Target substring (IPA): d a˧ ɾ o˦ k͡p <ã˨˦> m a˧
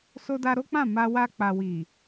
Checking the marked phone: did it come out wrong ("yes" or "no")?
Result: yes